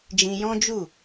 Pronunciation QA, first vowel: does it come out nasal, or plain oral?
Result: nasal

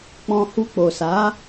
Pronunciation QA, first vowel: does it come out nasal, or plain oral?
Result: nasal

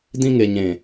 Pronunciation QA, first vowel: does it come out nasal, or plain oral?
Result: nasal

